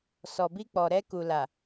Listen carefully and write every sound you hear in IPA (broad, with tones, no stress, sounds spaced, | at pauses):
s ɔ˨ b i˧ k͡p ɔ˨ ɾ ɛ˧ k u˨ l a˨